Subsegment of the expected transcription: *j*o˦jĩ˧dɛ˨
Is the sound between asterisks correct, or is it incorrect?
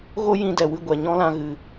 incorrect